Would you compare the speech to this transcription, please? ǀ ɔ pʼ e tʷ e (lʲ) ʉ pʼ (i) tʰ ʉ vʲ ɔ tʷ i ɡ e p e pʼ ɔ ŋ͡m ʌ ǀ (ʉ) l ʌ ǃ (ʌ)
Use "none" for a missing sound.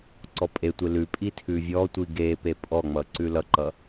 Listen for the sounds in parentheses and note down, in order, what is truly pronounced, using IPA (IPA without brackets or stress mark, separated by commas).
l, i, ʉ, ʌ